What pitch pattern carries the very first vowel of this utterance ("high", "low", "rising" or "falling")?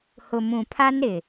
low